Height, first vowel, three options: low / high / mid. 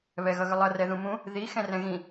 mid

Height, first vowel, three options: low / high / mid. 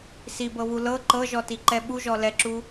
high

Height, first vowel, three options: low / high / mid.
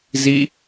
high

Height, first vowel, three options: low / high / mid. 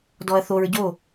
mid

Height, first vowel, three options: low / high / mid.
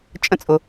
mid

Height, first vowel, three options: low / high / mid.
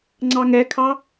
low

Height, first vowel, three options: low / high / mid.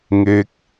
mid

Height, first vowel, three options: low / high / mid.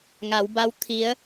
low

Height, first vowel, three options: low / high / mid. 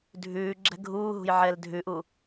high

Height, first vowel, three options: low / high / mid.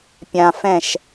low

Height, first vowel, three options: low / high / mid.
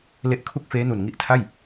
mid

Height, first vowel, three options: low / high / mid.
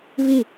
high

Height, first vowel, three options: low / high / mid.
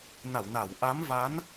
low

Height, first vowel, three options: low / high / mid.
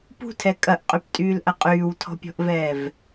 high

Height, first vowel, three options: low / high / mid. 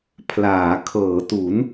low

